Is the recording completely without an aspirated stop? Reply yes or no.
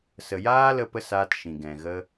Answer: yes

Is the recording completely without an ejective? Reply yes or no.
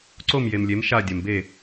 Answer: yes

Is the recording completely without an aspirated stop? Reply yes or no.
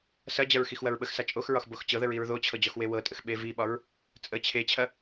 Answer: no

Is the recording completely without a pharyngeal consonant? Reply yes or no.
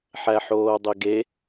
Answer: no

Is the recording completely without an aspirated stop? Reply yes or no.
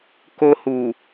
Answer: yes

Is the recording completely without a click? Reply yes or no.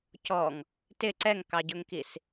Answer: no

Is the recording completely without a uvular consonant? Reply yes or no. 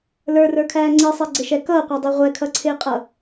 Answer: no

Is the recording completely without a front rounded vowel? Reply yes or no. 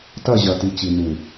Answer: yes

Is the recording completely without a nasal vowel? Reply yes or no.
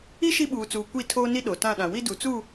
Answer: no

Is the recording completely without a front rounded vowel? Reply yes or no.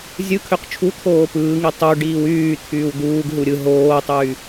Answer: no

